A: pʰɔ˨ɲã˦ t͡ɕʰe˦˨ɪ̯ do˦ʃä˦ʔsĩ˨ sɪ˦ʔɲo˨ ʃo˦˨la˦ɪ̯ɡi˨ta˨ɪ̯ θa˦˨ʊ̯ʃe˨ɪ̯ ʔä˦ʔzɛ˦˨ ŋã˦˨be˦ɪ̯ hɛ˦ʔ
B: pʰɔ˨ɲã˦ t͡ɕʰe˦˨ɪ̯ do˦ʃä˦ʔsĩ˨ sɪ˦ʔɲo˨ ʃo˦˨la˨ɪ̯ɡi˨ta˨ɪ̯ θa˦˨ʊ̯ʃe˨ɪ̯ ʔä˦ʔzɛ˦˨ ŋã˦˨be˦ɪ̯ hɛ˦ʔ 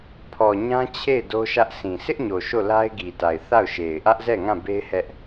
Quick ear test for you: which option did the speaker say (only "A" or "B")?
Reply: A